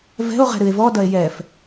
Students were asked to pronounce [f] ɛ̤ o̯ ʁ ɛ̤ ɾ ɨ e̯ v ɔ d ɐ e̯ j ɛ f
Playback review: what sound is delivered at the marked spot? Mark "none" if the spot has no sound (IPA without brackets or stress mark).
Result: v